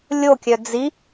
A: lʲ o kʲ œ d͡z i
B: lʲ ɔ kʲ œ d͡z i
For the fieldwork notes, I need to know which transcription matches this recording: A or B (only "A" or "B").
A